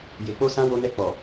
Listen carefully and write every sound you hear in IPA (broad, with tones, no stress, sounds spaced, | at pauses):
j e˨ k͡p o˧ s ã˧ w o˧ n ɛ˧ k͡p ɔ˨